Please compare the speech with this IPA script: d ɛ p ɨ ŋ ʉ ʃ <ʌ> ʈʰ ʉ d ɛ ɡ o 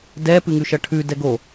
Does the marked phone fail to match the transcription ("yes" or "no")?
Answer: no